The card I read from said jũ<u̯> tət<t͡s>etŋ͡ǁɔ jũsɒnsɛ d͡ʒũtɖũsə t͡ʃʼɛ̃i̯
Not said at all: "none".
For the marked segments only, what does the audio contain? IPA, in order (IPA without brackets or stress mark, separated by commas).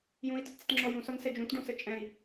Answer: i̯, t͡s